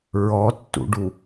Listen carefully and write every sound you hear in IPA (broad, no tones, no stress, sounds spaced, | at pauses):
ɹ ɔ tː ṵ ɖ u